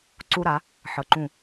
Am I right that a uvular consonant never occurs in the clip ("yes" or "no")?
yes